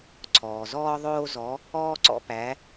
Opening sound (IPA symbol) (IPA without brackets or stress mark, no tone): ǀʰ